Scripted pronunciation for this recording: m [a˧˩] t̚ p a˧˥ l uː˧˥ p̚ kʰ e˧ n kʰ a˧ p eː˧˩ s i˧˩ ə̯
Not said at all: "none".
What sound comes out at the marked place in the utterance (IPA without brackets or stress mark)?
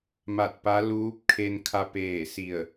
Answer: a˧˩